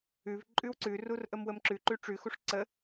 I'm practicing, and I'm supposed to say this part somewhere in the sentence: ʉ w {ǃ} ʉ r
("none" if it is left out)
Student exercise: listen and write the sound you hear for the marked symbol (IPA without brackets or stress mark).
ǀ